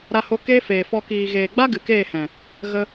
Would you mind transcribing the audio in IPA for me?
ɾ a˧ h o˧ k eː˦ f eː˨ f ɔ˧ k iː˨ ɣ eː˨ ɡ͡b a˦ ɡ ɨ˨ k eː˦˨ h ɛ̃˨ | ɣ ə˧

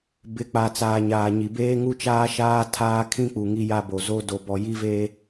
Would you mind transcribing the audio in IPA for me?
b ɪ˨˦ k͡p a˨ t͡s aː˨ ɲ aː˨ ɲ i˨ b eː˦ ŋ u˦ t͡ʃ aː˦ ʃ aː˦ tʰ aː˦ kʰ ĩ˦ k͡p u˨ ŋ i˦ j a˦ b o˨ z o˦ d o˨ b ɔ˨ j i˦ v eː˦

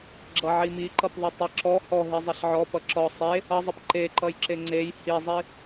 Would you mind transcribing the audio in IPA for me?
ɡ͡ǁ ʌ ʕ i m i ǃ ʌ p ðˤ i tˤ ʌ ǁ ɔ h ɔ ɦ i zˤ ʌ ɬ ʕ ɔ p ʌ ǁ ɔ sˤ e | ʌ zˤ ʌ p ǃ e ǃ ʌ j ǁ e ŋ͡ǀ e j h i zˤ i

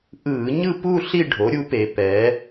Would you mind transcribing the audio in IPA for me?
ʔ ɯː˧˩˧ ɲ ɯ˥˧ p u˥˧ ɬ i˥˧ ɖʱ o˩˥ ɾʲ u˩˥ p e˩˧ p ɛ˩˧

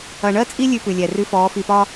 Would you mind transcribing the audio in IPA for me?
ɐ˨ ɳ ɜ˦ t͡sʼ i˦ lʲ ʉ˦ p ʉ˨ lʲ ɛ˨ r ʉ˦ f ɔː˨˦ f i˨ p ɒ˦

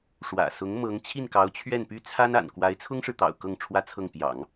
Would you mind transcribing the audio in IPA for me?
ʂ w ä̰˨˩ s ʊ˧˥ ŋ m ɤ˧˥ ŋ t͡ɕʰ i˥˩ n k ɑ˧˥ ʊ̯ t͡ɕʰ ɥ ɛ˥˩ n p y˥ t͡sʰ a˥ n a̰˨˩ n k w a˧˥ ɪ̯ t͡sʰ ʊ˥ ŋ ʂ ɻ̩˨ t̪ ɑ̰˨˩ ʊ̯ k ɤ˥˩ ŋ ʈ͡ʂʰ w ä˥ t͡sʰ ɤ˥˩ ŋ p j ɑ̰˨˩˦ ŋ

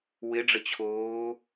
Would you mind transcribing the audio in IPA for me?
w ɪ ɖ͡ʐ ə t͡ɕʰ oː

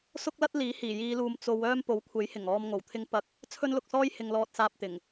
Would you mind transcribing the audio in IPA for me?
s ʊ˥ k̚ l ɐ˥ t̚ l iː˨˥ h iː˨˩ j iː˨˧ l uː˨ m t͡s o˨˧ w œː˥ m p o˨˥ w kʷʰ e˨˥ j h ɪ˨˩ ŋ ɔː˧ m ŋ o˨˩ w t̪ʰ ɪ˥ ŋ p ɐ˥ k̚ | t͡sʰ ɵ˥ n l ʊ˧ k̚ s ɔː˥ j h ɪ˨ ŋ l ɔː˧ t̚ s aː˧ p̚ t̪ ɪ˨˩ ŋ

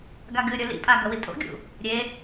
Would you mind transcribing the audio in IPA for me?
ɡ a ɡ ɨ ɾʲ ɵ l ḭ pʼ a ɡ ɐ w i tʼ o̰ ɡʲ ṵ | ɾʲ e

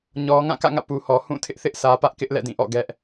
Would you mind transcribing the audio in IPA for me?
ɲ ɔ˨ ŋ ã˦˨ k ä̰˦˨ ŋ ä̰˦˨ p u˨ h ɔ˨ h ũ˦˨ tʰ ɪ˦ ʔ θ ɪ˦ ʔ sʰ ä˨ p ä˦ ʔ k ɪ˦ ʔ l ɛ̰˦˨ d ĩ˦˨ ʔ ɔ̰˦˨ ɡ ɛ˦ ʔ

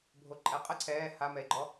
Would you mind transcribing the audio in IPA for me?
bʱ o ǃʼ ɛ qʼ ə ǀʰ ɛː h a m ɛ e̯ ɡ͡ǃ ɔ

